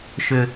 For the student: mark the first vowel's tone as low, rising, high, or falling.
low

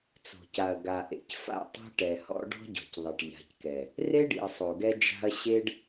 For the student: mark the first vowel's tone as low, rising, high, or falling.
low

